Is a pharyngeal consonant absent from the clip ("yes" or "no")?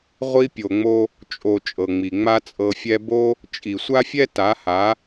yes